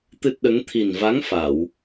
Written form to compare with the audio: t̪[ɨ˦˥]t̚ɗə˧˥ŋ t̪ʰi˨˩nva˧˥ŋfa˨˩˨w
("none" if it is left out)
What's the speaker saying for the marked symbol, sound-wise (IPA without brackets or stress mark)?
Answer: ɨ˦˥